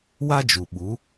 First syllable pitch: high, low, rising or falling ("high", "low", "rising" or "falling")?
high